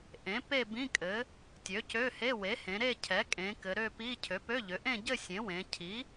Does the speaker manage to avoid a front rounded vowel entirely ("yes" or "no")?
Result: no